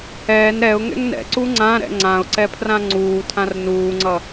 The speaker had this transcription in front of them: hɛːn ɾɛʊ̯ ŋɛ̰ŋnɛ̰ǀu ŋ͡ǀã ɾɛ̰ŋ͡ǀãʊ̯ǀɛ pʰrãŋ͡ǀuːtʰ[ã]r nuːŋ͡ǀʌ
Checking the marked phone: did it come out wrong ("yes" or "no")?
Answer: no